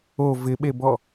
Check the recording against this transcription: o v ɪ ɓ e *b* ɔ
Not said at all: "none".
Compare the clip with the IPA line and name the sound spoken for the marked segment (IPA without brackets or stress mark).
b